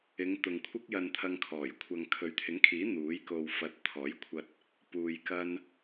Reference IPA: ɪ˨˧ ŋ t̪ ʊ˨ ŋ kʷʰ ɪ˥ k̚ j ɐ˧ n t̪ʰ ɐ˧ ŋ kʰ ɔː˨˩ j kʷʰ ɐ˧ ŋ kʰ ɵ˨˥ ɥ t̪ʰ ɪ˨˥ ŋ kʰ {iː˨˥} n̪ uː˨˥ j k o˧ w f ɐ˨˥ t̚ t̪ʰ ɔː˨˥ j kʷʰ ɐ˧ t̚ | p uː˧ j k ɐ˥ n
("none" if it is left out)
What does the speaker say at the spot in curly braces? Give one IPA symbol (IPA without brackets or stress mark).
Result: iː˨˥